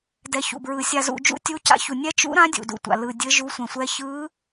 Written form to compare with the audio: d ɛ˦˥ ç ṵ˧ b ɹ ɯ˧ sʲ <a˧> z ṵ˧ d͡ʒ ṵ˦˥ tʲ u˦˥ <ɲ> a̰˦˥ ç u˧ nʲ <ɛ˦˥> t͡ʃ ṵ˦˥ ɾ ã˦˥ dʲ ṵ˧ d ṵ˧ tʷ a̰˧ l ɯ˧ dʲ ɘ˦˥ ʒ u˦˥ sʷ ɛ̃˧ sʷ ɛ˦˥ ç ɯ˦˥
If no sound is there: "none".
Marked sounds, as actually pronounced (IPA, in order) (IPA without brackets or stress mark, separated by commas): a˧, c, ɛ˦˥